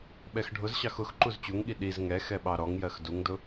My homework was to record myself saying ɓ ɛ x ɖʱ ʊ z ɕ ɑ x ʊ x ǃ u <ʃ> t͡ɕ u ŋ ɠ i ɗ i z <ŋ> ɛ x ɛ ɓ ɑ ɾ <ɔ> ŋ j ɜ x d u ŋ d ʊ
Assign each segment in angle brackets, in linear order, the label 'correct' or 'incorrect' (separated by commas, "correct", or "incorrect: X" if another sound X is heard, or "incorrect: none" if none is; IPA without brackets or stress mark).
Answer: incorrect: z, correct, correct